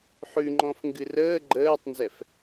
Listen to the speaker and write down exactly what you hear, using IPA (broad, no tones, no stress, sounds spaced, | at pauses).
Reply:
ħ ʉ ŋ͡ǃ ɔ̃ f ŋ ɡ ɨ r əː ɡ͡ǃ əː tˤ n z ɛ f